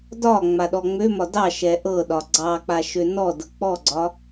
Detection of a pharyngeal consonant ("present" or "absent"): absent